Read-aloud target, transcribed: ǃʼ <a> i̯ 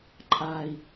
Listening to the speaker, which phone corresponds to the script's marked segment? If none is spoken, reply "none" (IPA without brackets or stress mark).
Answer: a